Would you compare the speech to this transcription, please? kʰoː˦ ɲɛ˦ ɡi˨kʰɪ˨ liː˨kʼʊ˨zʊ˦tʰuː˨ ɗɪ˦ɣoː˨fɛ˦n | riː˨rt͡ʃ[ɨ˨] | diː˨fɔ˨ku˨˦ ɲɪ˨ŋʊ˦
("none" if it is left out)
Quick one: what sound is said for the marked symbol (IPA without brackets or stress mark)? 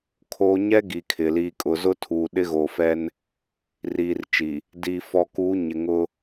i˨